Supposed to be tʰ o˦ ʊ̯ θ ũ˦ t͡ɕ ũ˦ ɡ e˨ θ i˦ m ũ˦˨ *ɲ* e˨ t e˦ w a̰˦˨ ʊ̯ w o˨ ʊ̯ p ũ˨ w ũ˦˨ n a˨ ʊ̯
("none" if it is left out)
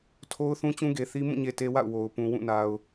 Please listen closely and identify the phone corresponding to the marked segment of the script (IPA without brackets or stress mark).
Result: ɲ